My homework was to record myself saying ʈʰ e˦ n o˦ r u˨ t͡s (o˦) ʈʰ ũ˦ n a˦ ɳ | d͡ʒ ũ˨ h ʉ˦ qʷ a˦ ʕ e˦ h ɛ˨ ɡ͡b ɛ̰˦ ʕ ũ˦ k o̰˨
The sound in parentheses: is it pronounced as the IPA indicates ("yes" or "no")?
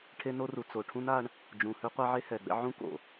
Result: no